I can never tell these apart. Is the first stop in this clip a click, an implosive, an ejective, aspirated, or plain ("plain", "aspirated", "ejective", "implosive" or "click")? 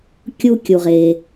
plain